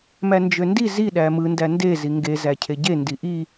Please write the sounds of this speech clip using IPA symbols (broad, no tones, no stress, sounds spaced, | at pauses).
m æ n d͡ʒ ø n d i z i ɗ æ m ɯ n d æ n d e z i ŋ ɡ e z æ cʰ e ɟ e n d i ʔ i